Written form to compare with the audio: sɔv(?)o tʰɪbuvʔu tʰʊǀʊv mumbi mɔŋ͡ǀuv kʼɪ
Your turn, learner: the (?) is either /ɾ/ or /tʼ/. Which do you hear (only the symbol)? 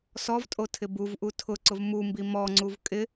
tʼ